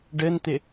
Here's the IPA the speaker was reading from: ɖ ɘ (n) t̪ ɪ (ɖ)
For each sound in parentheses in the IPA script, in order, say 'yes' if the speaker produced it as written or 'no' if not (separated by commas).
yes, no